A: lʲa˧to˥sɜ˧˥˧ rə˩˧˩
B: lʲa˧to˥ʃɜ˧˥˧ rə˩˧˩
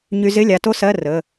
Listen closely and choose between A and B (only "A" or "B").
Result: A